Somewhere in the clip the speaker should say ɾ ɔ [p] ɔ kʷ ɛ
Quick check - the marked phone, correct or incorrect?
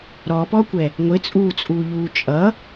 correct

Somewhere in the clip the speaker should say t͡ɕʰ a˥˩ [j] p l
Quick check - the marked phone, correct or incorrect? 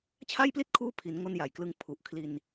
correct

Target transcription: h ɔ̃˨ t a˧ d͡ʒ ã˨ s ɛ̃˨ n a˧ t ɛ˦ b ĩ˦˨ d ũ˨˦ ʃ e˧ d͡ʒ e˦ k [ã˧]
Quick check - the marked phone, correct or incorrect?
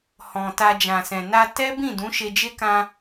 correct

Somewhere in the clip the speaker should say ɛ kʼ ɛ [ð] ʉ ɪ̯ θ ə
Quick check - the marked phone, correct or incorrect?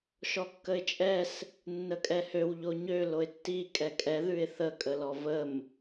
correct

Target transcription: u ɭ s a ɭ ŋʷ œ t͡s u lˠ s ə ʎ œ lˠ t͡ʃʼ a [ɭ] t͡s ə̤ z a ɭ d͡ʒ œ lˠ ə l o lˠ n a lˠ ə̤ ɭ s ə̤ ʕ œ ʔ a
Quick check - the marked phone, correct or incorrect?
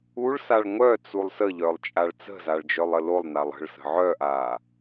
correct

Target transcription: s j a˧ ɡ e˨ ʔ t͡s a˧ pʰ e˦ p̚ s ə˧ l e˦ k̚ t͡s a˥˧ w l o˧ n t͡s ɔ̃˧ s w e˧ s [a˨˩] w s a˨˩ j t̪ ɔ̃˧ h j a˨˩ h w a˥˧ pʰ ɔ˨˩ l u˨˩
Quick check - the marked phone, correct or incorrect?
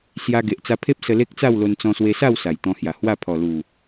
incorrect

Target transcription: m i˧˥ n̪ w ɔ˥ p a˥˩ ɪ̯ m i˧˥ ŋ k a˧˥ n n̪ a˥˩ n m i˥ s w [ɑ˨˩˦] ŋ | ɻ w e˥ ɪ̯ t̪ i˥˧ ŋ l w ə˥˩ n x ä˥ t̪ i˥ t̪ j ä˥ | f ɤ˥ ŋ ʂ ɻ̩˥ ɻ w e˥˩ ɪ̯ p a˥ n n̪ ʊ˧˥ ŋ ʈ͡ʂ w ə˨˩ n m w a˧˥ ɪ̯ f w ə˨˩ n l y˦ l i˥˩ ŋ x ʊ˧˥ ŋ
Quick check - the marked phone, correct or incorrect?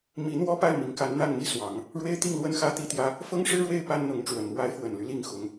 correct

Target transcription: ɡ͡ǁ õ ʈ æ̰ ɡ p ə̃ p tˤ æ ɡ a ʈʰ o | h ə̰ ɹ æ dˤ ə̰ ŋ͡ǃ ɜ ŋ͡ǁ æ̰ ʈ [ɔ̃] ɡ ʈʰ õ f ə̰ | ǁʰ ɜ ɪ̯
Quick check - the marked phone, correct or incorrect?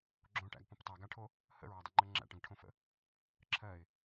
incorrect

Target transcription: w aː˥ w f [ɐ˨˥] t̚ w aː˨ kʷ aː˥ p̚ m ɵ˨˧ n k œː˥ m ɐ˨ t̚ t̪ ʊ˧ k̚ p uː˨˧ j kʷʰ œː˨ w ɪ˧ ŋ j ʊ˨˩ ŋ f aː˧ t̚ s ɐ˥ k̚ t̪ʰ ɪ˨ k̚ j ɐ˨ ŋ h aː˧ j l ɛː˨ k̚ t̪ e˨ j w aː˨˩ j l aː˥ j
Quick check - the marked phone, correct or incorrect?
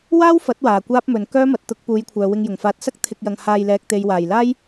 correct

